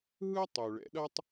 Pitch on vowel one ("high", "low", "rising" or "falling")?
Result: high